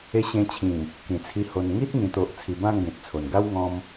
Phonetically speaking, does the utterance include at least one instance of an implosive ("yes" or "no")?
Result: no